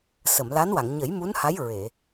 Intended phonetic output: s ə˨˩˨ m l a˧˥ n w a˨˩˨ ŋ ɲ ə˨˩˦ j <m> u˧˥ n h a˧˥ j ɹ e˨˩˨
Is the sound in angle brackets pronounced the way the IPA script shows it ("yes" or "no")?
yes